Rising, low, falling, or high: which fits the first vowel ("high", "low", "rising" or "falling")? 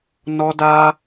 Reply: high